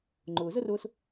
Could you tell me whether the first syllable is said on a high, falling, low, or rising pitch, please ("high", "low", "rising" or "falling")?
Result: low